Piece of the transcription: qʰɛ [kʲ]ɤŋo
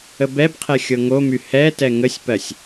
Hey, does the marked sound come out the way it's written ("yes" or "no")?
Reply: no